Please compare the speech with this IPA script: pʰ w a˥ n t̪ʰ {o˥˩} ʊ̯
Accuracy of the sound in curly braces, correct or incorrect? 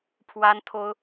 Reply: incorrect